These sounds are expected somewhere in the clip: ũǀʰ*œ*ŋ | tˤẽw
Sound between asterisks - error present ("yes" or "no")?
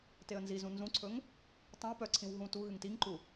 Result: yes